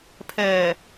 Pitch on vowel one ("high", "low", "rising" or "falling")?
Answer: low